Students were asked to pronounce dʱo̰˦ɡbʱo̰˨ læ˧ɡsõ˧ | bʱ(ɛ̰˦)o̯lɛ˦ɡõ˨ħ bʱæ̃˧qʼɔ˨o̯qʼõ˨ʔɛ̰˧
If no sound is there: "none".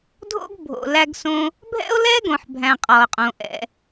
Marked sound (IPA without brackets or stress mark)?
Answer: ɛ̰˦